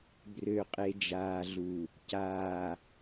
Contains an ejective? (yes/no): yes